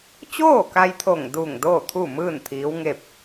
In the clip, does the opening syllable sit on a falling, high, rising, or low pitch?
falling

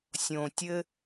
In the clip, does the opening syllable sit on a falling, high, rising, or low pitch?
low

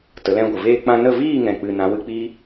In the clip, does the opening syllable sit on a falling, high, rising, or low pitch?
rising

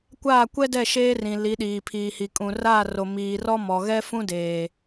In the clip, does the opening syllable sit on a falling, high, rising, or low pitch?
falling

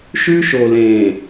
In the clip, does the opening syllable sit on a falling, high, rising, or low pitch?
high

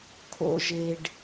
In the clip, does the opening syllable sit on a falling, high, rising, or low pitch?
low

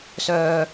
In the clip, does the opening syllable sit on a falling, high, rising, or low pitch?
low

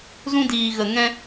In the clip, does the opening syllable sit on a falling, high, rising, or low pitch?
high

